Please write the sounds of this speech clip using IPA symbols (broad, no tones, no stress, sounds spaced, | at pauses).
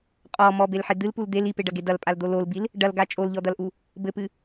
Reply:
qʼ ɔ m ɔ b e l ħ e d̪ ɨ l p u l d̪ e l i p e ɖ ɐ ɡ e d ɐ l pʼ a l d̪ o l o l b i l | ɖ ɐ l ɡ a t͡ʃʼ o l ʎ ɔ d̪ ɐ l ʔ u | b ɘ p ɨ